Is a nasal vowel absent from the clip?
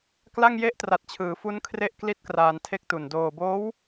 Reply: yes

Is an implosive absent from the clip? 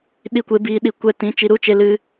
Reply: no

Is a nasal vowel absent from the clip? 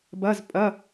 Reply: yes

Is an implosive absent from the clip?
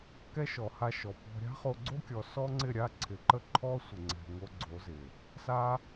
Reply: yes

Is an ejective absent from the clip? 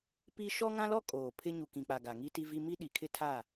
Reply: no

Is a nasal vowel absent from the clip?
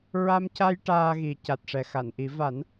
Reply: yes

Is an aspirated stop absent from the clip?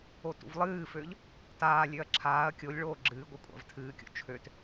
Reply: no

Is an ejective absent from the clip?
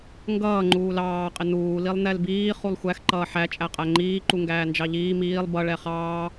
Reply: no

